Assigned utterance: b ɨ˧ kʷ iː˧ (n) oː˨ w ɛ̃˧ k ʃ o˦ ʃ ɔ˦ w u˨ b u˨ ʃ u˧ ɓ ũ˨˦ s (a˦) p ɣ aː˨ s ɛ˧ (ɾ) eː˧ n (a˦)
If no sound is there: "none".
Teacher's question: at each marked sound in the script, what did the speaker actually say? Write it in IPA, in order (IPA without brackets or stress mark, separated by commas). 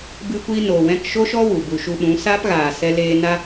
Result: n, a˦, l, a˧